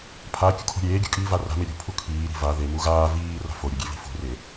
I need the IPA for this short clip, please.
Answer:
pʰ a kʲ ṳ kʰ o̤ ɾʲ eː ɡʲ o̤ kʼ iː v a r a̤ m e ɾʲ ṳ pʰ u kʰ iː ɾ i̤ v a ð e m u ɣ aː v iː r a̤ f o ɾʲ o ɡʲ e v i̤ f ṳ r e

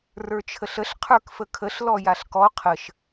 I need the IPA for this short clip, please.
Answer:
r ə˞ t͡ʃʰ ə ɬ ə ɬ qʰ ə˞ k f ə kʰ ə ɬ l ɔ j a ɬ k ɔ qʰ ə ʃ

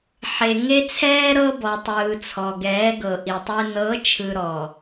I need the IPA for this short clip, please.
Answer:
ħ e˨ ŋ e˦ t͡sʰ ɛː˦ ɾ ɤ˦ b ɔ˨ tˤ ɯː˨ t͡sʰ ɔ˨ ɡ ɛː˨˦ ɡ ɤ˨ ʔ i˨ tˤ e˦ n ɤ˨˦ t͡ʃʰ ɯ˨ ɾ ɔ˨

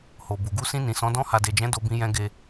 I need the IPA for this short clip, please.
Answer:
h o˨ b u˨ ɡ u˧ s ĩ˧ n ĩ˨ s ɔ̃˨˦ d ɔ̃˧ h a˨ d e˨ d͡ʒ ɛ̃˨˦ d o˧ b ĩ˧ j ɛ̃˧ ɡ e˧

